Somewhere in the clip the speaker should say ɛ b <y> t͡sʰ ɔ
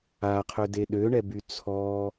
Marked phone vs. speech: correct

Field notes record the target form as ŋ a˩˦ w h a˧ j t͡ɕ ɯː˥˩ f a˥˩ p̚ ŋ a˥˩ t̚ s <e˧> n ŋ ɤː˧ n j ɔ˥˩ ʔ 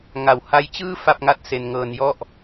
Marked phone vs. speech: correct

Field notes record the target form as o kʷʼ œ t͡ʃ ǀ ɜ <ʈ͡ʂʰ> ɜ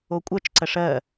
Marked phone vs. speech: incorrect: ʂ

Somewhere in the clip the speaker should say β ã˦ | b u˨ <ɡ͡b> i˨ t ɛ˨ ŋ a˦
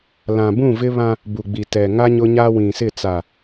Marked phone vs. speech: correct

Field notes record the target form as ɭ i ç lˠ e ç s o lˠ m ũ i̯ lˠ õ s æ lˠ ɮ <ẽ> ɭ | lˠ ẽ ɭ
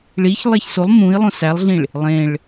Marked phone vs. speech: incorrect: ĩ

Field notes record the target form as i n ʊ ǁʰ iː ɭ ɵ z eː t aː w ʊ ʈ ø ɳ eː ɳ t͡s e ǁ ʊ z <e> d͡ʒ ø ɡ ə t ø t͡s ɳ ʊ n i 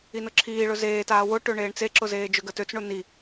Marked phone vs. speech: incorrect: eː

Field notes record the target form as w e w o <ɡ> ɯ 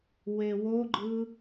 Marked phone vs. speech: incorrect: ɡ͡ǃ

